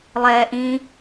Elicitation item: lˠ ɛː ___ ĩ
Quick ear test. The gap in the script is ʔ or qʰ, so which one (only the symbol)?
ʔ